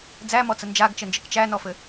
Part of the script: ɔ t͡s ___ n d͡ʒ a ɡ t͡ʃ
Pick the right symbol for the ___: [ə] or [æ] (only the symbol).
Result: ə